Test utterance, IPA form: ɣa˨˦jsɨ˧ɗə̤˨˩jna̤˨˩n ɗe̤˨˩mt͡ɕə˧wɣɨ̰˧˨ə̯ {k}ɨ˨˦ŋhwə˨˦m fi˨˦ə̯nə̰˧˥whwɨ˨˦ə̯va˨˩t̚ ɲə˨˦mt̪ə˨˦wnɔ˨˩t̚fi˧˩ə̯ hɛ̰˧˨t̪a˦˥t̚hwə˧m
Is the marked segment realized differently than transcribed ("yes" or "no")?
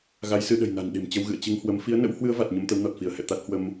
yes